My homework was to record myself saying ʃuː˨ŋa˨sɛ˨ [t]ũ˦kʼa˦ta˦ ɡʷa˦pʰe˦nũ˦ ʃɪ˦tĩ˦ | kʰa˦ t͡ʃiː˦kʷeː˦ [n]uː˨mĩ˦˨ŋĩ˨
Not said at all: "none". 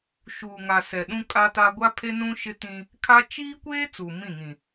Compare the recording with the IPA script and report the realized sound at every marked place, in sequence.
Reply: ɗ, t͡s

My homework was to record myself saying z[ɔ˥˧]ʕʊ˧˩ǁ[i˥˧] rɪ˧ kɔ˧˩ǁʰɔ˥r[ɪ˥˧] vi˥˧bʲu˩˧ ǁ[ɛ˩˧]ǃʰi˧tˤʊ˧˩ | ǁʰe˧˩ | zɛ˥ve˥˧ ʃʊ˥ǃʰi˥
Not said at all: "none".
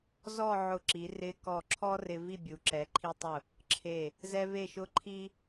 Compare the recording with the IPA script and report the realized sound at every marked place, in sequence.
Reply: ɔ˥˧, i˩˧, ɪ˧, ɛ˩˧

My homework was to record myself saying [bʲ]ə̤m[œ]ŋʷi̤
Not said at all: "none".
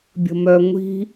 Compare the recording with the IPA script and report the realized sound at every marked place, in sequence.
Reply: bʲ, œ

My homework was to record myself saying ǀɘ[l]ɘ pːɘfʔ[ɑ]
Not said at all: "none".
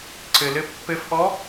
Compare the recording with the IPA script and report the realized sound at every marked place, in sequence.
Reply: l, ɔ

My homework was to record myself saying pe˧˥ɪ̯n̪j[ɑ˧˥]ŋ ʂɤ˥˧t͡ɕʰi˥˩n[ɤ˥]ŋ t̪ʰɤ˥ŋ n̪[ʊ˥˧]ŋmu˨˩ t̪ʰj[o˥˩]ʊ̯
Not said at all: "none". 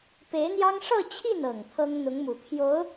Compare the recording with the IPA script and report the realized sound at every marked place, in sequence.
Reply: ɑ˥, ɤ˨˩, ʊ˧˥, o˧˥

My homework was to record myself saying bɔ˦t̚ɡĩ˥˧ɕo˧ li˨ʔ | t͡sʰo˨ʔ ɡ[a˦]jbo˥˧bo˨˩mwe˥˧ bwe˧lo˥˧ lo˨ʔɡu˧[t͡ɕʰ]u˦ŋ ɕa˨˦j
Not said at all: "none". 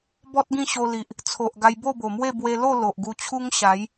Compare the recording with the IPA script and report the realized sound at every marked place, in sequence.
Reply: a˧, t͡ɕʰ

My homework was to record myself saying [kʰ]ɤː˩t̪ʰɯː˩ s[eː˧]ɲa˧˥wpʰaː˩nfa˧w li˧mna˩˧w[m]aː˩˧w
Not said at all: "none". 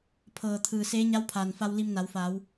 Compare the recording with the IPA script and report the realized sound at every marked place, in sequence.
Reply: pʰ, eː˧˥, f

